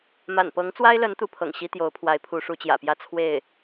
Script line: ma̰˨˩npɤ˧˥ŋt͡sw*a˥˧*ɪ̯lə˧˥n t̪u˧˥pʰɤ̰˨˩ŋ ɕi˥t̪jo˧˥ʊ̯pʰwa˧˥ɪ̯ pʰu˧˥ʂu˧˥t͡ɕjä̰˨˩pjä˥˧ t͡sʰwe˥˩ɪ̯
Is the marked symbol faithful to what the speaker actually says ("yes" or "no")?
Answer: no